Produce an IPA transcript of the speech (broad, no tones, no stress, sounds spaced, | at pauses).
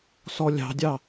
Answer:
s ɔ lʲ ɑ̤ dʲ ɑ